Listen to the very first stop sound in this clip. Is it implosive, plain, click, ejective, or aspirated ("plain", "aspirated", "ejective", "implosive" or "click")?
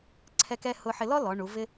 click